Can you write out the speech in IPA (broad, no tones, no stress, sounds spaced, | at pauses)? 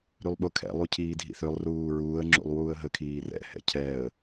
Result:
ɾ y lˠ ɓ ʊ kʰ ɛ̰ lˠ u cʰ iː dʱ ḭ θ ø lˠ r uː ɹ uː ə̯ ŋ͡ǁ ṵ lˠ w uː ə̯ ɦ ə kʰ iː r ɛ̰ h ɛ̰ cʰ ɛ ə̯